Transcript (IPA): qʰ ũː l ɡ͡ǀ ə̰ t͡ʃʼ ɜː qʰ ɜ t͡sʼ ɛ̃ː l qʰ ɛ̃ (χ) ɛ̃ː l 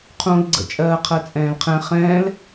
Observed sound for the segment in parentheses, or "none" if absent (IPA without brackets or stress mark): χ